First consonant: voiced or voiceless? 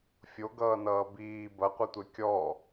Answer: voiceless